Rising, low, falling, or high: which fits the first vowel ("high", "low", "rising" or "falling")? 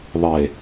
low